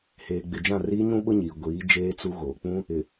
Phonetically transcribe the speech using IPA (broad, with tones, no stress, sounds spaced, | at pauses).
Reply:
h eː˨ ɡ͡b ɪ˨ d͡ʒ ã˦˨ r iː˦ ɲ ũ˦ ɓ ʊ˦ ɲ iː˨ ɡʷ iː˨˦ d͡ʒ eː˦ t͡s u˦ ɣ oː˨ k͡p ũ˦ | ɪ˨